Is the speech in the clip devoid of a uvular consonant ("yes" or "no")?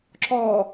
yes